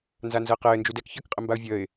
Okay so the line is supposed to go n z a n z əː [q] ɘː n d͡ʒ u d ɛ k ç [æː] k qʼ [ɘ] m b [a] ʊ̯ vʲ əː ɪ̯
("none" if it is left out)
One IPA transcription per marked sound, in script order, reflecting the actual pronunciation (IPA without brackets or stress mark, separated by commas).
q, əː, ɘ, a